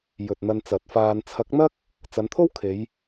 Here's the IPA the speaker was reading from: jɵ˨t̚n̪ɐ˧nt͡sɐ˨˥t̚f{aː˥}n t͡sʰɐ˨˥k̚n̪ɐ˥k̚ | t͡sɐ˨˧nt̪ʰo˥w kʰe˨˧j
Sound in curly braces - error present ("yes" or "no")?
yes